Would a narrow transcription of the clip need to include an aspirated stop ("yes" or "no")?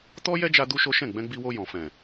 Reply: no